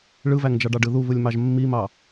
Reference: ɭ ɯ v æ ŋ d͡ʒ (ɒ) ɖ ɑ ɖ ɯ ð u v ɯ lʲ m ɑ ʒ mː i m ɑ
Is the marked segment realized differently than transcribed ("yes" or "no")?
yes